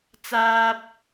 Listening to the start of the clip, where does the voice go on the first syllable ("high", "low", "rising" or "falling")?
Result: high